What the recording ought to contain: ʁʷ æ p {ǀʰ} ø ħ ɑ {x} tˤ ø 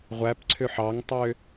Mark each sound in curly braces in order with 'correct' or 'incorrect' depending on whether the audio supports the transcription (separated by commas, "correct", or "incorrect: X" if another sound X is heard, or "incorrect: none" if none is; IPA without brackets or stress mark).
correct, incorrect: ŋ